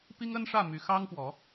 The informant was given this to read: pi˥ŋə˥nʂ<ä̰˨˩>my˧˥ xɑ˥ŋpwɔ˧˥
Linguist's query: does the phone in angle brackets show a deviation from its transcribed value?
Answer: yes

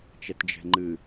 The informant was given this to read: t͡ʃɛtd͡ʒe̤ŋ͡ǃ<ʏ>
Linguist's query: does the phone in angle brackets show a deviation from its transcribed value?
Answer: yes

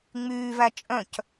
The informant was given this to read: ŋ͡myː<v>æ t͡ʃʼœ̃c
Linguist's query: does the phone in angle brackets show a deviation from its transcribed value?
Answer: no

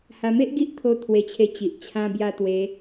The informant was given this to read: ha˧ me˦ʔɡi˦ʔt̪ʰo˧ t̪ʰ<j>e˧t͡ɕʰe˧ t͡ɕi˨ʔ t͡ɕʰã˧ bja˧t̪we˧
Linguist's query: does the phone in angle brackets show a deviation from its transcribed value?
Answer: yes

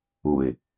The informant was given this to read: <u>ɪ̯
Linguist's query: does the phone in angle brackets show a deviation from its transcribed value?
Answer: no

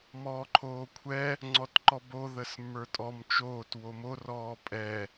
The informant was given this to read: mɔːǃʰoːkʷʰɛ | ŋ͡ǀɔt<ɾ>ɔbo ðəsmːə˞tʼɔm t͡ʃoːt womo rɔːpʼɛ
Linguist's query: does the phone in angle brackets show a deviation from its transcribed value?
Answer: yes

